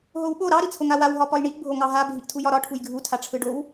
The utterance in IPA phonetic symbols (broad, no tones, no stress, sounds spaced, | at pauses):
ɦ o w ɓ o ɾ ɑ ɾ i t͡sʰ o ŋ a w a w ɦ ɒ p ɒ j ɳ i ʔ bʱ o ŋ ɑ ɦ a bʱ i ʔ tʰ u j ɒ ɾ ɒ ʈʰ u j ɡʱ u tʰ a ʈ͡ʂʰ ɯ ɖ o w